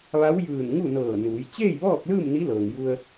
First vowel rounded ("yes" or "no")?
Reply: no